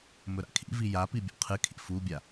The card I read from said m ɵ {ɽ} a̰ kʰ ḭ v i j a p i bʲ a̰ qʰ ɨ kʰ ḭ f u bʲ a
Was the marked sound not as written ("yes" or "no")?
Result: yes